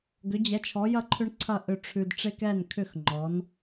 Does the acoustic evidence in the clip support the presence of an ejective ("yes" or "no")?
no